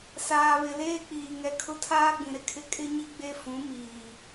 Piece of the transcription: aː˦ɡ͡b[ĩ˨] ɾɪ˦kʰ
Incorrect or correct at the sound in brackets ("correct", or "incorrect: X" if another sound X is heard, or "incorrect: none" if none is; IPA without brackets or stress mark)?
correct